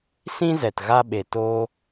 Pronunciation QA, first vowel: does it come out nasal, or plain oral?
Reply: nasal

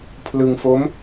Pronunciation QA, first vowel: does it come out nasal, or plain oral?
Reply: oral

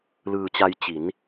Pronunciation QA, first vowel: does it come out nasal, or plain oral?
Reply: oral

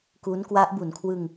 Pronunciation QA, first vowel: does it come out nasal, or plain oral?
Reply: oral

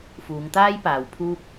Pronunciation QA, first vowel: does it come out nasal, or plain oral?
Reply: oral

